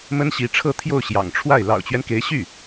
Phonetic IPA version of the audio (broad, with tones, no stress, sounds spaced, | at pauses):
m ə˥ n ɕ i˧˥ ʈ͡ʂʰ ɤ˥˧ t̪ʰ j o˥˩ ʊ̯ ɕ j ɑ̰˨˩ ŋ ʈ͡ʂʰ w a˥˩ ɪ̯ l ɑ̰˨˩ ʊ̯ t͡ɕ ɥ ɛ˦ n k e˧˥ ɪ̯ ɕ y˥˩